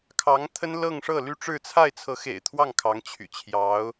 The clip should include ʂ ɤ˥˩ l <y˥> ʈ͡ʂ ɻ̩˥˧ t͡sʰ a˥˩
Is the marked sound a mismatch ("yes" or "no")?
no